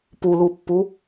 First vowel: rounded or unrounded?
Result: rounded